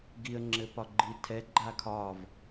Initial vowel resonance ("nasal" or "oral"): oral